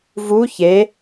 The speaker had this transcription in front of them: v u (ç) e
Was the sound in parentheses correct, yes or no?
yes